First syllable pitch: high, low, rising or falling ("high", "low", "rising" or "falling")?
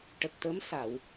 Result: low